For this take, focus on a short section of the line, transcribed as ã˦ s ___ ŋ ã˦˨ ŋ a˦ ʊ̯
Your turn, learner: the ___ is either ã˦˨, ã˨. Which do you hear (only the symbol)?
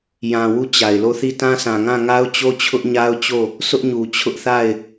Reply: ã˨